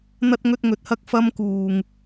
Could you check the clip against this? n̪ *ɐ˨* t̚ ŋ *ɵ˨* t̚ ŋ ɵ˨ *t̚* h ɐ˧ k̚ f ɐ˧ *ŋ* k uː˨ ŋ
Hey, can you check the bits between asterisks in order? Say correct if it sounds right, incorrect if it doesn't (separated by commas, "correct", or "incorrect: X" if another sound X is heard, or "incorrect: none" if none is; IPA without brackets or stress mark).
incorrect: ɐ˧, incorrect: ɵ˧, correct, incorrect: m